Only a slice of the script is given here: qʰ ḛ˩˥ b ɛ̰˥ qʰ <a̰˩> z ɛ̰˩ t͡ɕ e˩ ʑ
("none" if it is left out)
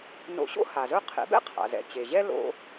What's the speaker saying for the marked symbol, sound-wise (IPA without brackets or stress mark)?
a̰˩